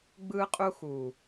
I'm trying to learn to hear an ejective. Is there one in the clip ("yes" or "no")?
yes